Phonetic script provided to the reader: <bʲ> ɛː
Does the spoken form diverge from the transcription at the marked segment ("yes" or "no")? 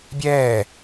no